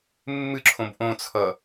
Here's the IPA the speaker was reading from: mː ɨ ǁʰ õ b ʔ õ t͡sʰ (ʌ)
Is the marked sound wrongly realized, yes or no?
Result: no